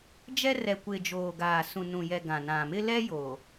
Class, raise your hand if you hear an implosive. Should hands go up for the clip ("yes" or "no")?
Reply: no